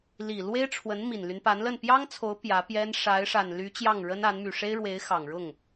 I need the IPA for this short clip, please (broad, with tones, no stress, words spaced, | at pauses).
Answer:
li˨˩ lwe˥ɪ̯ʈ͡ʂʰwə˧˥n mi˨˩nly˦npa˧˥nlə˥˩n pjɑ˥ŋt͡sʰo˧˥ʊ̯ pjä˧˥pjɛ˥n ʂa˧˥ɪ̯ʂa˨˩nly˧˥ t͡ɕjɑ˥˩ŋɻə˥na˧˥n my˨˩ʂe˥ɪ̯ɻwe˧˥ɪ̯ xɑ˨˩ŋɻʊ˥˩ŋ